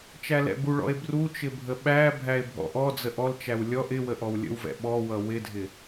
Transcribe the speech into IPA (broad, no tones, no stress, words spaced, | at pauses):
t͡ʃælɛ̰buɭɔ̰e̯ bru t͡ʃɪbʱəɓæbʱæe̯ bʱɔ̰ʔɔd͡zə ʔɔlt͡ʃæw lʲɔʔ ɪwə ʔɔwlʲə̰wvɛ̰ ɓɔwʌ wɪdʱɪ